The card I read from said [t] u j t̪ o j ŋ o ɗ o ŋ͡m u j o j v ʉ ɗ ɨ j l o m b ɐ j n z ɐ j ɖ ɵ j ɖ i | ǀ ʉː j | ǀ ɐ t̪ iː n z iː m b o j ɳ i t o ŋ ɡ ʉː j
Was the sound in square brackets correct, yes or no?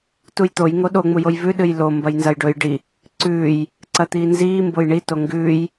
yes